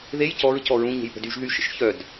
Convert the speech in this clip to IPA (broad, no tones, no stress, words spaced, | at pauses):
ðej cɔɹ cɔɹũ ɲe̤jpə̤dyʒ ðyʃə̰ʃçœd